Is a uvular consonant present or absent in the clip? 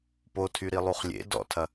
present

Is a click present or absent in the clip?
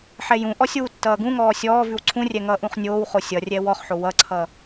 present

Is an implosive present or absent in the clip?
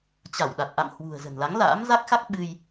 present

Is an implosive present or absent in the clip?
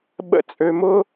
present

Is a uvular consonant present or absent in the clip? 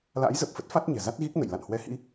absent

